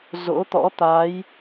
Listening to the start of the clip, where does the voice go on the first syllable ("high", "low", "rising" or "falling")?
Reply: rising